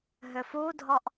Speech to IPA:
ɦ ʏ f u dʱ ɔ ʔ

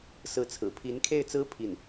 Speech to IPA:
s ɹ̩˧˥ t͡sʰ ɹ̩˨˩ pʰ i˧˥ n kʰ e˥˩ ɪ̯ t͡s ɹ̩˥ pʰ i˥˩ n

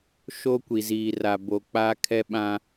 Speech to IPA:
ʃ o˦ kʷ i˨ z iː˨ r a˨ b o˨ k͡p aː˦ kʰ ɛ˦ ɓ ã˦

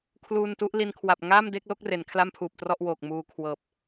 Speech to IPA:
kʰ l uː˧ n t u˦˥ ʔ l i˧ n kʰ w a˨˩ p̚ ŋ aː˥˩ m d e˥˩ k̚ l o˥˩ k̚ r e˩˦ n kʰ l a˥˩ m pʰ uː˨˩ p̚ t r ɔ˥˩ ʔ w oː˨˩ k̚ m uː˧ kʰ w ɤː˨˩ p̚

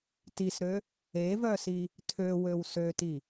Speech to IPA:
t i s ɾ ø | e v œ s i | tʰ ø w ø w s ø t i

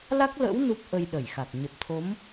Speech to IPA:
l a˦˥ k̚ l ə̰˧˥ w n u˦˥ p̚ ʔ ə˧ j ɗ ə˧˩ j x a˨˩ k̚ ɲ ə˨˩ p̚ t̪ʰ o˨˦ m

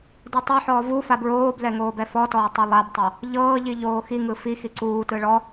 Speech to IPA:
d e tˤ ɤ ħ ɔː v u f a b ɹ oː b l ɛ ŋ oː b ɛ f ɔ t ɔː tˤ ɤ lˠ a b tˤ o | ʎ ɤː ʎ i ʎ oː x i ŋ ɯ f i x i ǀ uː t ɯ ɭ ɔ

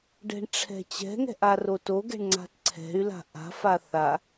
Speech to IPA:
ɖ ɛ̤ ɳ ʈ͡ʂʰ ɛ̤ t͡ɕ ɛ̤ ŋ ɛ̤ ʔ a r o t o ɡ ɛ̤ ɳ ŋ͡ǀ a̤ t ǀʰ ɛ̤ y̯ l a̤ ʔ a̤ f a θ a

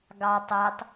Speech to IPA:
ɡ ɑ tˤ ɵ tˤ

